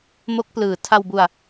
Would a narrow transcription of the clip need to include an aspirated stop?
yes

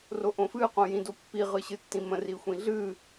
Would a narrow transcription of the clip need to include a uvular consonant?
yes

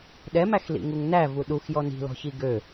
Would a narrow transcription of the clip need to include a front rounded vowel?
yes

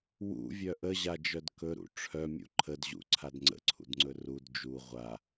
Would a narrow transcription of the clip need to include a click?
yes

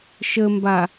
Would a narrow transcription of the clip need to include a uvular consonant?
no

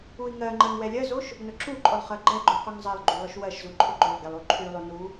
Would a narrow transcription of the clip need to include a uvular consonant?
yes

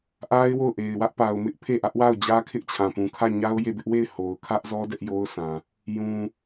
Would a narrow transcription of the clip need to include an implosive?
no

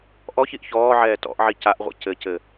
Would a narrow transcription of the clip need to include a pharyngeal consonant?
yes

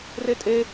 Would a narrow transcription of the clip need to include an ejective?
yes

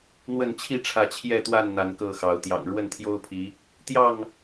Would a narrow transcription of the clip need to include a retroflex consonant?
yes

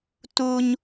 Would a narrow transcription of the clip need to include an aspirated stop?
no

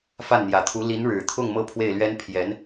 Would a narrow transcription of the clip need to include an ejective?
no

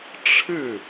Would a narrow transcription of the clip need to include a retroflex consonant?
yes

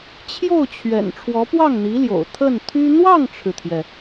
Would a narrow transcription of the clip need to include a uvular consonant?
no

